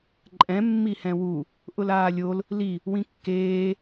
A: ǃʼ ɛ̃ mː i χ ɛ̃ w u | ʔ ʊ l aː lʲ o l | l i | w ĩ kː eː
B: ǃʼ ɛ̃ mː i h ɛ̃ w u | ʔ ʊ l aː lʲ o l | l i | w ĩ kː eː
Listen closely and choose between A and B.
B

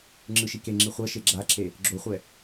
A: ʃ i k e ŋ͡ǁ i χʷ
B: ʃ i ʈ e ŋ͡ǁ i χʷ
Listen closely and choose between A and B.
A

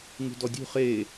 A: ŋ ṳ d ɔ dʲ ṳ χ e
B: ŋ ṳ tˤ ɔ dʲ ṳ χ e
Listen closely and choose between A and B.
A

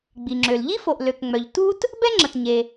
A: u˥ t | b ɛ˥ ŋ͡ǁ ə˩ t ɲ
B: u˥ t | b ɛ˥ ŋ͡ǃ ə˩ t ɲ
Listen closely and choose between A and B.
A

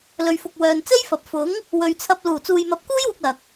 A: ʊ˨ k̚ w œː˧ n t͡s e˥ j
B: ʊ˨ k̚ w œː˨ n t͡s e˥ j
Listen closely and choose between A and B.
B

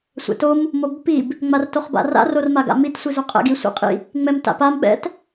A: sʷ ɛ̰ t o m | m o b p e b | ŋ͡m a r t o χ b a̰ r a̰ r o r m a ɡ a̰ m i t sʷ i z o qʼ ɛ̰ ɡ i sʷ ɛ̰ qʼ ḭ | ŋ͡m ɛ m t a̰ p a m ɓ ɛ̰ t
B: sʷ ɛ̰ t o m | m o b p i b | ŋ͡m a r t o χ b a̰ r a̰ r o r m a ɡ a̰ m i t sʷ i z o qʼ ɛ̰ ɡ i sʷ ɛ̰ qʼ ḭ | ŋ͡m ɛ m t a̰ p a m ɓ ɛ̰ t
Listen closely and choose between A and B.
B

